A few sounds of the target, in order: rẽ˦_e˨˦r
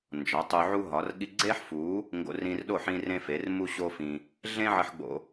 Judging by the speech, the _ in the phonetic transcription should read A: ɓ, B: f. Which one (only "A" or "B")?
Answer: B